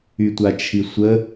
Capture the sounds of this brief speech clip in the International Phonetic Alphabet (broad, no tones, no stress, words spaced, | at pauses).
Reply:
ytʷat͡ʃʰisʷə